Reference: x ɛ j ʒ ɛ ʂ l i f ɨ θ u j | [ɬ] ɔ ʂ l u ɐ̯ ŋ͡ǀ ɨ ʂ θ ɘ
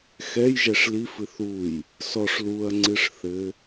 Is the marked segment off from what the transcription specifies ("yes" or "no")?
yes